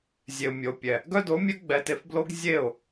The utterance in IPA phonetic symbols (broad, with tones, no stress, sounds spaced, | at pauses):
zʲ e˨ ʊ̯ mʲ o˨ pʲ ɛ˨ | ɡ œ˦ d o˨˦ mʲ œ˦ ɡ͡b ɛ˧ t e˧ f b l o˦ ɡ zʲ e˦˨ ʊ̯